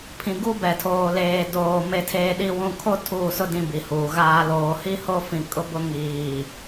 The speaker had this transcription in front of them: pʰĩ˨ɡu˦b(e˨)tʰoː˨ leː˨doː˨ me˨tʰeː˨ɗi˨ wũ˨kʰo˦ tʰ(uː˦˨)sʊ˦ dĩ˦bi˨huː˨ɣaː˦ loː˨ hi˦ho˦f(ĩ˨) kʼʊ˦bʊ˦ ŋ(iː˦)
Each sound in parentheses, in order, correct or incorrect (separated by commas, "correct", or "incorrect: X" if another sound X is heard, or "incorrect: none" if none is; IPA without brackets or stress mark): incorrect: ɛ˨, correct, correct, incorrect: iː˨